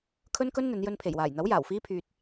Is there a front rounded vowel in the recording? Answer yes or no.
yes